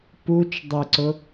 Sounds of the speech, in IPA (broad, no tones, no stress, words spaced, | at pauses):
put͡ʃ dˤɪǀʊ